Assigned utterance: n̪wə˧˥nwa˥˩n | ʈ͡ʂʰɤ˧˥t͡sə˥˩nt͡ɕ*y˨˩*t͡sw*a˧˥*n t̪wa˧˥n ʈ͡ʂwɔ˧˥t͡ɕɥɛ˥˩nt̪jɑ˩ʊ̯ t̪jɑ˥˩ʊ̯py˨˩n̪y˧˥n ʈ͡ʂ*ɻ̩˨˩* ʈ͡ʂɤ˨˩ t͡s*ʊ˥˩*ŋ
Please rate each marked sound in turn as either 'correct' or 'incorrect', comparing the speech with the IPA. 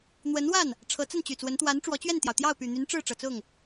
correct, incorrect: ə˧˥, incorrect: ɻ̩˥˩, correct

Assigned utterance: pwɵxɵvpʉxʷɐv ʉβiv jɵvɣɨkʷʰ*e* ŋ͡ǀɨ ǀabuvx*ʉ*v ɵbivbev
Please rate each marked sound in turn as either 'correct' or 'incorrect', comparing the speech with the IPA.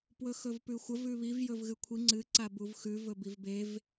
incorrect: i, correct

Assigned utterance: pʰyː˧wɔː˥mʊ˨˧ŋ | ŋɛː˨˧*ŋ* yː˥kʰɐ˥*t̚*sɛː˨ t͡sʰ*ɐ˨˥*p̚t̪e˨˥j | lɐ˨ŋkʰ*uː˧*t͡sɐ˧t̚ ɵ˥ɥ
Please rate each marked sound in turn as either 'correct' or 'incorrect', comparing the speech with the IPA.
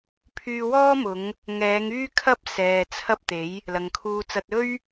correct, incorrect: p̚, incorrect: ɐ˥, correct

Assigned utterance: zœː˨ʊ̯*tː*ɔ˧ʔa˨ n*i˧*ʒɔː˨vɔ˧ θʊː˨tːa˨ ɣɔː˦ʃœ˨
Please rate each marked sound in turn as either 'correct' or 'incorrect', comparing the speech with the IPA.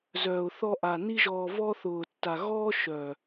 incorrect: θ, correct

